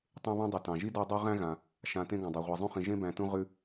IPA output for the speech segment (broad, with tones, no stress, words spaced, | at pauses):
tˤẽ˦βã˥dˤi˩ tɑ̃˩ʒi˥dæ˦dˤu˦ ʁæ̃˥ɣã˩ | ʃã˨ tẽ˦ɡɑ̃˩dˤa˩ʁʷa˨ zˤũ˥χĩ˨ ʒẽ˥bæ̃˨tũ˦ ʁʉ˦